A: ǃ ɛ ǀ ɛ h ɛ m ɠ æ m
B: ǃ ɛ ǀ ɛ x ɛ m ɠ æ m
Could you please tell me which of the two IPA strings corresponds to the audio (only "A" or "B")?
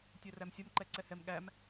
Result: A